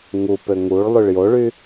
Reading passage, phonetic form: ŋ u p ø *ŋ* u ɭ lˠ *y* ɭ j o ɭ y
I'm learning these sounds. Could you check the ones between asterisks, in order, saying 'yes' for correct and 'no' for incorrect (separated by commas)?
yes, yes